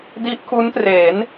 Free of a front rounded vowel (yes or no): yes